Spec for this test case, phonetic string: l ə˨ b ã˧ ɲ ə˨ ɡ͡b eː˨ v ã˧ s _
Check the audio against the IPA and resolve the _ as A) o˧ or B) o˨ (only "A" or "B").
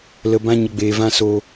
A